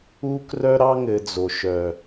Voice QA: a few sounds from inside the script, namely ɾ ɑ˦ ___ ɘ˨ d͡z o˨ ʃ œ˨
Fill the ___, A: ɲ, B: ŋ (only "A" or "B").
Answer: B